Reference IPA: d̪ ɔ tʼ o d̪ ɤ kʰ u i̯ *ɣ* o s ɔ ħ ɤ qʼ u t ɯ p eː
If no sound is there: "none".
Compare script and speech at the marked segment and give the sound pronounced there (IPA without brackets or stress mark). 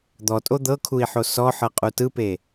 ħ